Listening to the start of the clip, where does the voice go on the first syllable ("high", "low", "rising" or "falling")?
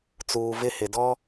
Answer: low